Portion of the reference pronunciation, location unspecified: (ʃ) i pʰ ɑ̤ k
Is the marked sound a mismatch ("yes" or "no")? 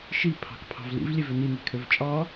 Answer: no